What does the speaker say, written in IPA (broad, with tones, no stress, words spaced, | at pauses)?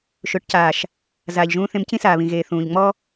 ʃʊː˨ʈcaː˨ʃ | zaː˨ʎʒũː˧ θẽ˧mcĩ˦saː˨βĩ˨ ɣeː˨θũː˨ʎŋ͡mɔ˦